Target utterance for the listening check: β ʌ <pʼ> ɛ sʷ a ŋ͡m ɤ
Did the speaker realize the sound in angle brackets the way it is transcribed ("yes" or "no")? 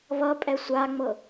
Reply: yes